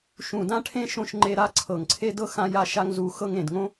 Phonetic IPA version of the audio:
ʃ ũ˨ d ã˦ ʈʰ ẽ˦ ʃ õ˦˨ ʃ ŋ͡ǃ e˦ ɾ a˦ ǀʰ ɤ˨ ŋ ǀʰ e˦ d ɤ˦ x ã˦ j a˦ ʃ a˦ ŋ z u˦ x ɤ˦ ŋ ẽ˨ d ŋ õ˦

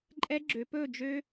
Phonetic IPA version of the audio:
ǃʼ ɛ˦˥ ɡ͡ǁ ø˩˧ p ɵː˥˨ d͡ʒ ø˦˥

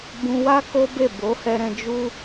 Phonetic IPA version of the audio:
b ũ˧ w a˦ k o˦ b e˦˨ b o˨˦ h ɛ˧ ɾ ɛ̃˧ d͡ʒ u˦

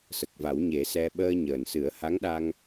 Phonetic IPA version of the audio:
s ə˨˩ k̚ v a˨˩˦ w ɲ e˨˩˦ s ɛ˧ ɓ əː˧ ɲ əː˨˩ n s ɨ˨˩˦ ə̯ h a˧˥ ŋ ɗ a˧ ŋ

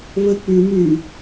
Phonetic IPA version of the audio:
β ə k͡p ʉ m ʉ

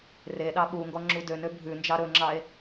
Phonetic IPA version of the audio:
r e ɗ ɑ ɓ u ŋ ɡ ɔ ŋ͡ǁ u d ø n ø bʱ ʉ n d͡ʒ ɑ ɾ ɵ ŋ͡ǁ ɑ e̯

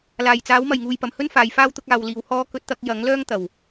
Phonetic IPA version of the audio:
l aː˨˩ j t͡s aː˨˥ w m ɐ˨˩ j ŋ uː˨ j p ɐ˨˩ m h ɵ˥ n f aː˨ j f aː˥ w t̪ ʊ˨˥ k̚ aː˨ w l iː˨ w h ɔː˥ k ɵ˧ t̚ t̪ ɐ˧ k̚ j ɐ˨˥ ŋ l œː˥ ŋ t̪ ɐ˨˩ w

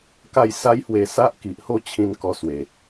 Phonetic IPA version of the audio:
k a˥˧ j s a˦ j h w e˧ s a˦ ʔ k i˨ ʔ h o˥˧ t͡ɕʰ ĩ˧ n k ɔ˧ s w e˨˩

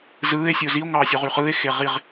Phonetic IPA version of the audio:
z ɯː e̯ sʲ ɯ o̯ z i o̯ ŋ ɑː sʲ u ʁ y χ ɯː e̯ x e ʁ i ʁ

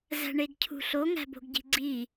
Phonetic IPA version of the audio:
z æ̤ ɳ e ɡ cʰ ṳ ɬ o ŋ æ̤ b o̤ ɡ ɟ i̤ ɡ͡ǀ i

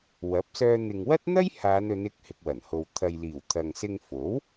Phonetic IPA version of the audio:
w ɐ˨˥ p̚ s œː˧ n̪ ɪ˨ ŋ w ɐ˥ t̚ n̪ ɐ˥ j h aː˨˧ n ɵ˨˧ n ɪ˨˥ k̚ h ɪ˨ k̚ w ɐ˨˩ n h o˨ w t̪ʰ ɐ˨ j l iː˨˩ w t̪ʰ ɐ˨ ŋ s ɪ˧ ŋ f o˨˥ w

